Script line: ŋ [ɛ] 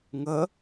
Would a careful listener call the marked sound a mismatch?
yes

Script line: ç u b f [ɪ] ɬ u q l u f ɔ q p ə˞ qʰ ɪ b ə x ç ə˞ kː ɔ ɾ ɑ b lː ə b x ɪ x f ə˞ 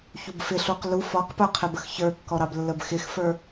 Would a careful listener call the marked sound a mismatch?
no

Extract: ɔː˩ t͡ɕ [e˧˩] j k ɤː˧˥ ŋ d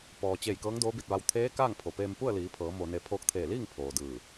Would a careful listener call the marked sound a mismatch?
no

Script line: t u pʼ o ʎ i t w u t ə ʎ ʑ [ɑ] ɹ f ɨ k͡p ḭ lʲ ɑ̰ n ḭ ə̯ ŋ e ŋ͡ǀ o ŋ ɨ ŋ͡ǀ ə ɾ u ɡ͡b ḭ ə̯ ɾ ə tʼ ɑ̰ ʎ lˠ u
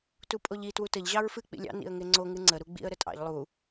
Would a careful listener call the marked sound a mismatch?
no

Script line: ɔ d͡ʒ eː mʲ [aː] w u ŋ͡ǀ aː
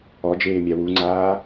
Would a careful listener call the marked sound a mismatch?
yes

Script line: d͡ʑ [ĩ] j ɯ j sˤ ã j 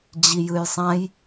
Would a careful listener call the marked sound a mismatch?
yes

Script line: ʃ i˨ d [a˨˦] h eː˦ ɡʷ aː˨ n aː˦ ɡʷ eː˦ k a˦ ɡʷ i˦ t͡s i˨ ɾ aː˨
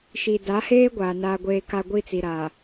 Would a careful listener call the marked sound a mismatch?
no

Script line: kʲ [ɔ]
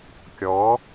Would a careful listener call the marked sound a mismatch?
no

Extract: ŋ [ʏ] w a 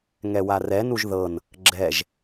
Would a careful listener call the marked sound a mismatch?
yes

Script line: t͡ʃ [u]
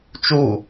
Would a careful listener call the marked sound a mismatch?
no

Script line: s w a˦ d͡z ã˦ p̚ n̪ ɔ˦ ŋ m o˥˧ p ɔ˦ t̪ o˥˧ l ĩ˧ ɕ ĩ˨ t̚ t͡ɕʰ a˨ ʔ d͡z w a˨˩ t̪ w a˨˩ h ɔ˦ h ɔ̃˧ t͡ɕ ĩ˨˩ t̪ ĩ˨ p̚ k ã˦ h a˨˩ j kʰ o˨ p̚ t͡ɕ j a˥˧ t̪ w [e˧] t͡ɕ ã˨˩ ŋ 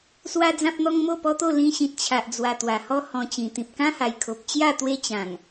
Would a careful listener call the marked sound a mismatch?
yes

